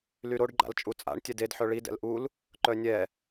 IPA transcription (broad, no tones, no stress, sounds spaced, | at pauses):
l y ɾ o ɖ ɡ͡ǃ a̰ l t͡ʃʼ u t͡sʼ a̰ ɳ tʲ ɛ d e d ħ œ ɭ i d ɛ̰ l ʔ u l | ǃ œ nʲ ɛ